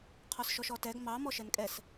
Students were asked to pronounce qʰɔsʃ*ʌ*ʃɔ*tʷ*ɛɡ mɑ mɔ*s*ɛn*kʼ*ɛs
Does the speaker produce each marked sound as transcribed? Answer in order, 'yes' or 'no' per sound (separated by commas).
no, no, no, yes